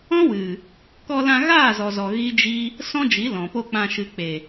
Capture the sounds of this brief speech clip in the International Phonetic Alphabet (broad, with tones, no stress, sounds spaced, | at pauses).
ɔ̃˦ w ɨ˨ | k ɔ˧ l ã˧ ɣ aː˦˨ z ɔ˨ z ɔ˨ ɣ i˦ d͡ʒ i˦ | s ɔ̃˦ d͡ʒ i˨˦ l ɔ̃˨ p o˧ k͡p ã˨ ʃ ɨ˨ k͡p e˨